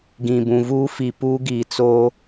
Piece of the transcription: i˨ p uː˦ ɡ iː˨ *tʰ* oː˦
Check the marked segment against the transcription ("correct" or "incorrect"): incorrect